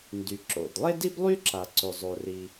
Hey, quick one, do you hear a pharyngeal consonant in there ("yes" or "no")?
no